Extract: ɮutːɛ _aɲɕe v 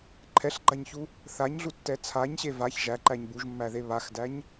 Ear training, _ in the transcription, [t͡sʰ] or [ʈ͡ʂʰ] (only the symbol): t͡sʰ